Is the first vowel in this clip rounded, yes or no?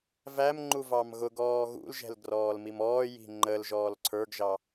no